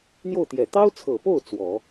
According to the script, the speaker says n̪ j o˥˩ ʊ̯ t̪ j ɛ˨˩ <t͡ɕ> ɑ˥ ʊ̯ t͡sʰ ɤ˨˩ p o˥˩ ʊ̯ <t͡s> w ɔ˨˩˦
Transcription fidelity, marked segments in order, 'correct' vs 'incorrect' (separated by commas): incorrect, correct